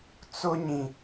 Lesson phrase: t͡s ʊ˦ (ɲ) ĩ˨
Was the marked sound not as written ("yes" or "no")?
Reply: no